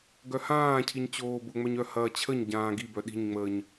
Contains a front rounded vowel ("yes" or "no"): yes